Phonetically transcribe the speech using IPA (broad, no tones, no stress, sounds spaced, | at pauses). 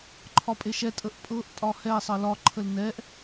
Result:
ǃʰ ɒ pʼ e ʃ ɛ tʼ ə ʔ pʼ ɤ ʔ tʼ ɒ h ɛ sˤ ɤ l ɒ ǃʰ ə l n ɛ ʔ